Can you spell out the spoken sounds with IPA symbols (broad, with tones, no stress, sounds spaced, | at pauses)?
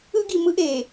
ɯ˦ ɡ i˨ m ɯ˦ ʔ e˨